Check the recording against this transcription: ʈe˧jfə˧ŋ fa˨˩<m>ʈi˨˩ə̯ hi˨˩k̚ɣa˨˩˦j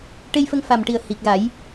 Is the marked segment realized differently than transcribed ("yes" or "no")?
no